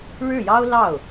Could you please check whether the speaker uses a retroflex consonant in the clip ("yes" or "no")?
yes